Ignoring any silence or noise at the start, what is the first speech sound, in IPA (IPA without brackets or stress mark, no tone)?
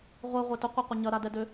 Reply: ʁʷ